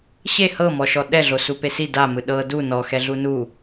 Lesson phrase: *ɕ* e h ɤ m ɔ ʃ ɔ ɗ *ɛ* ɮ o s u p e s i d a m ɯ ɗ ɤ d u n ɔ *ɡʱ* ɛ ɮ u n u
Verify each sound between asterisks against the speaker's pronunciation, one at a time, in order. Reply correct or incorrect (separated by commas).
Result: correct, correct, incorrect